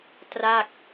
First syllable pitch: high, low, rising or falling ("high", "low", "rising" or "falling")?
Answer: falling